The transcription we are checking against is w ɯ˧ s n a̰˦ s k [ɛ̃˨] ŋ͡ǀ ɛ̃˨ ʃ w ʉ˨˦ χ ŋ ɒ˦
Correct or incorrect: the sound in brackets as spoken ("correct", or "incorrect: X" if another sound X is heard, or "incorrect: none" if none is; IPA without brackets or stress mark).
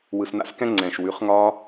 incorrect: ɛ̃˦